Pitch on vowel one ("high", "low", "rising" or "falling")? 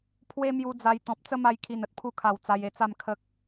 high